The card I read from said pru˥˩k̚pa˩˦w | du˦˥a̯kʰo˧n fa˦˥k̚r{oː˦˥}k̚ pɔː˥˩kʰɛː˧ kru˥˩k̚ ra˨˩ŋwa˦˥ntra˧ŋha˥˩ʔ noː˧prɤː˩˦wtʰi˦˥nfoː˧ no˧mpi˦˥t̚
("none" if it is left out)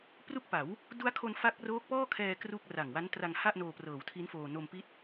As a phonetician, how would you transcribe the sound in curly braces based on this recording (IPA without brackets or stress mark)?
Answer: oː˦˥